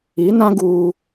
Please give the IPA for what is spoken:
i˨˦nã˦ ɡuː˦

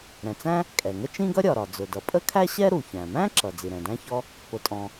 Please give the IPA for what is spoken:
ɾɛ̃˩t͡sæ̃˥ | kʼɛ˩ŋə˥ t͡ʃĩ˥ɡʌ˥ ɾʲɒ˩ɾɒ˩d͡zʊ˩dʌ˩ pʼə˥kʰæ˥ɕɛ˥ ɾu˩çæ̃˩mæ̃˥ǁʌ˩ d͡zi˩ɾɛ̃˩dæ̃˥çɔ˥ | pʊ˩tʼɔ̃˩

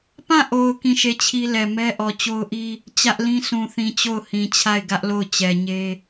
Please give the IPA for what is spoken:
pã˦˨ʔo˨ʊ̯ kĩ˦˨ʃe˦˨t͡ɕʰi˦lɛ˨ mɛ˦ʔɔ˨ t͡ɕo˦ʊ̯ʔi˦ | t͡ɕä˦ʔlĩ˦sũ˨θĩ˨ t͡ɕo˦˨ʊ̯hĩ˨t͡ɕʰa˦˨ɪ̯ ɡä˦ʔlo˦˨ʊ̯t͡ɕɛ˨ɲe˦

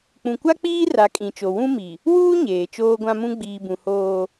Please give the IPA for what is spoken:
k͡pũ˨kʷa˦k͡piː˦ ra˨˦kʼĩ˨t͡ʃo˨ wũ˦ mi˨ | wuː˦ ɲeː˨t͡ʃoː˦ɡʷã˦mũ˦ ɡ͡biː˨bũ˨ hoː˦

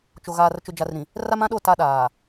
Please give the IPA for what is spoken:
t͡ʃo˨ɣaː˨r t͡ʃʊ˨d͡ʒa˨rɾĩ˨ | ra˦mã˦ɗo˦˨ ta˦ ɗaː˨

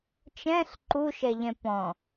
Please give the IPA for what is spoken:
t͡ʃɛ̃ɬ ǃuʃɛʎɛ̃ pɔ̃

